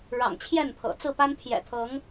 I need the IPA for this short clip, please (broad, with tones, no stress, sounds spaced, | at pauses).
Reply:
ɻ ɑ̰˨˩ ŋ t͡ɕʰ j ɛ˥˨ n pʰ ɤ̰˨˩ t͡s ɹ̩˥˨ p a˦ n pʰ j ɛ̰˨˩ t̪ʰ ɤ˨˦ ŋ